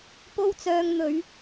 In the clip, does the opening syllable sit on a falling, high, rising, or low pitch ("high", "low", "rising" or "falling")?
high